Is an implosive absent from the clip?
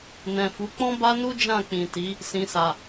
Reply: yes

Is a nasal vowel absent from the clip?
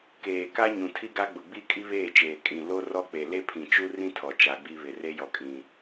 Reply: no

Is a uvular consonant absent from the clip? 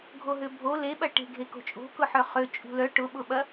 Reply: no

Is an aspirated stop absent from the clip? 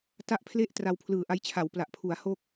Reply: no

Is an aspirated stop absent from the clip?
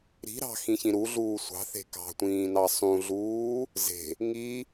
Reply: yes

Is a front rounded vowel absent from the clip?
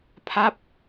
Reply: yes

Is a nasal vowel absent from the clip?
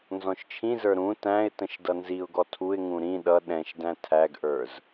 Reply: no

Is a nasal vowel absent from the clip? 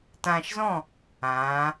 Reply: no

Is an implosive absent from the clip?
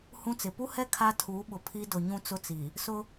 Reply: no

